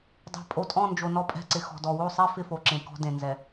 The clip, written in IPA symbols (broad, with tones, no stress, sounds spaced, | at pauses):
dˤ ɛ̤˨ pʼ o˨ tʼ ɔ̃˦˨ n d͡ʒ o˨ n ɔ˦ pʼ ɛ̤˦˨ ǀ ɪ˨ x ɔ̤˨ d ɔ˨ w o˦˨ sˤ e˦ f ɪ˦ f o˨ ǁ ẽ˨ k ɔ̤˦ d ẽ˨ n z ɛ˨